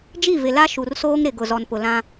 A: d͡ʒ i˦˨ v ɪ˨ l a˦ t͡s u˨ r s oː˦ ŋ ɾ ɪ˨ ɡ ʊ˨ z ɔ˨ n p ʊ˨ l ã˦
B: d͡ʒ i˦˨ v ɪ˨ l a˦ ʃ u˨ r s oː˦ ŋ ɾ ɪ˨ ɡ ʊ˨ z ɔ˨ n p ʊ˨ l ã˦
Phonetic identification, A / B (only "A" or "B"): B